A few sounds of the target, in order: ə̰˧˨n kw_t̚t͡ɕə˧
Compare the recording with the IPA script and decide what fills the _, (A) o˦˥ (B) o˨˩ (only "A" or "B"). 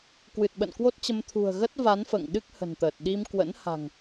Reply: A